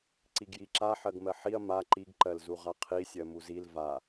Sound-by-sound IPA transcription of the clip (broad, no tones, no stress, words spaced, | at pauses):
ǀiɡjiǁa ħɜɡmɜħiɐ̯ ma ǃiɡ ǃɜlzuʁaqʰi sʲɜmuzil va